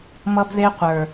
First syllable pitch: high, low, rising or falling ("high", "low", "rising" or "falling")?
high